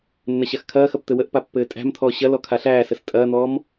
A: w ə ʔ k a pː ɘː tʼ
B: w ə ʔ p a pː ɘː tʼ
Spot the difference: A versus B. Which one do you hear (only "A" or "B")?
B